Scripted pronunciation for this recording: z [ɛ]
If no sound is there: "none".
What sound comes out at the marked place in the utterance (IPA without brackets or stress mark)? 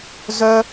œ